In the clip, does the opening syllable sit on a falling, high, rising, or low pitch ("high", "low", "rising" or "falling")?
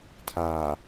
low